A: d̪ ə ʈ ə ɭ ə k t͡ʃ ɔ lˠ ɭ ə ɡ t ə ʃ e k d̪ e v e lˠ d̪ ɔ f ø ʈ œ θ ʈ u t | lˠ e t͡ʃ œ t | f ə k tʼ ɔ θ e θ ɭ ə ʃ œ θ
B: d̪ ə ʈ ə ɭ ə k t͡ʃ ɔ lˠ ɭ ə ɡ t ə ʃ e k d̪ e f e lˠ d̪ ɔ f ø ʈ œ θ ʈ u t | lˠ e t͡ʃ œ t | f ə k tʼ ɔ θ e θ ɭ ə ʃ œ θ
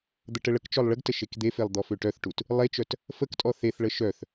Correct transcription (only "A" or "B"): B